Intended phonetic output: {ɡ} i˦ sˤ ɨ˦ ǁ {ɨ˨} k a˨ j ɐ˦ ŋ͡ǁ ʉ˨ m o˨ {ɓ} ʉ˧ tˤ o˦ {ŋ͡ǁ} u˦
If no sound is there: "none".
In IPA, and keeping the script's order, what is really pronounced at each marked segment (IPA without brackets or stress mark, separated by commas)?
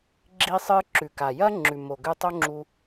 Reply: ɡ͡ǁ, ʉ˨, ɡ, ŋ͡ǁ